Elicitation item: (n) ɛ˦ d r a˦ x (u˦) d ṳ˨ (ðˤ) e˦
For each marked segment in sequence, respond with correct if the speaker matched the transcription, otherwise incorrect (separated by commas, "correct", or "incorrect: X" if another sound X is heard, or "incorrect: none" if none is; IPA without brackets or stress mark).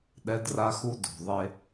incorrect: ɗ, correct, correct